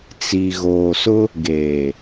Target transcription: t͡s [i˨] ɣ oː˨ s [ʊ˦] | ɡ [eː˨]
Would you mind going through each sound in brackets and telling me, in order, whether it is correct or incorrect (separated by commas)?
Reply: correct, correct, correct